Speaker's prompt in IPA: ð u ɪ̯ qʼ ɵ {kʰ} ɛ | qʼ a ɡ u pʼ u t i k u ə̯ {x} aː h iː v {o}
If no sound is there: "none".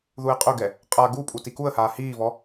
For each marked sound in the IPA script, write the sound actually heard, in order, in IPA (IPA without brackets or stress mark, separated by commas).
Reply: ɡ, h, ɔ